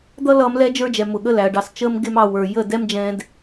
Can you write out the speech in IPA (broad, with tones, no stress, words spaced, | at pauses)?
d̪ʌ˦lʌː˧m lɛ˦d͡ʒə˞˦d͡ʒɛ˨ mʊ˨ɠə˦læ˨ɐ̯ɖɑ˧s t͡ʃəː˦mɡɪ˦m ɑ˧wə˞˨ jə˦˨dɛ˦md͡ʒɛ̃ː˧d